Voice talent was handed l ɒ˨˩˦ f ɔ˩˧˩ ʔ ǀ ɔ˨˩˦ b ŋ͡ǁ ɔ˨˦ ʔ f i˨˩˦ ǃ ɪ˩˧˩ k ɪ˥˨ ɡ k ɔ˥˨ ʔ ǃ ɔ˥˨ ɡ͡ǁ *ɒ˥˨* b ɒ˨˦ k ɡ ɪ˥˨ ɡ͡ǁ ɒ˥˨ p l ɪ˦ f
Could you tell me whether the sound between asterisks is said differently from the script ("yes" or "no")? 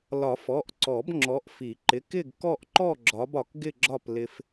yes